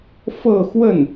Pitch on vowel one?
falling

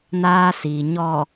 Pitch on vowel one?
high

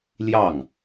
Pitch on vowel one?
falling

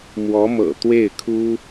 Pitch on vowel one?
rising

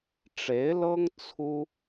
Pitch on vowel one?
rising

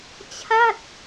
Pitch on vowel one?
falling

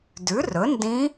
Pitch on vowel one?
rising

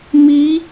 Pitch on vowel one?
rising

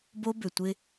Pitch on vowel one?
high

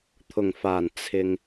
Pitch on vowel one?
low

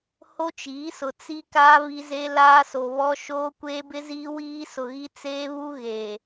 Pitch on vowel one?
high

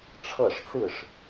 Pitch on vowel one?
falling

